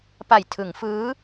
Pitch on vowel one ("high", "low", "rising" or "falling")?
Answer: low